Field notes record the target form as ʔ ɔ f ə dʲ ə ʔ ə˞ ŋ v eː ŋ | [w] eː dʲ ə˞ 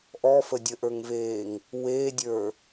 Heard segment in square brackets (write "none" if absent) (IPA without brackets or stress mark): w